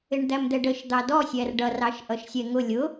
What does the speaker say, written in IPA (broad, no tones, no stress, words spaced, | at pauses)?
ɪɳd̪æmd̪ɛɖəʃ d̪ɑdɔsʲær ɖʌrɑʃ ʔʌʃsʲɛŋʊ lʲʊ